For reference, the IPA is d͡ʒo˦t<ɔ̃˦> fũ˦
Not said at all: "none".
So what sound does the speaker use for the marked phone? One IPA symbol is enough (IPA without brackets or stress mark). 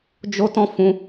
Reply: ɔ̃˦